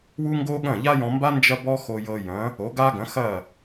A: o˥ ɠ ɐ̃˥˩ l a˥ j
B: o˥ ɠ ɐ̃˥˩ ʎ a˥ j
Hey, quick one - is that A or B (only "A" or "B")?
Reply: B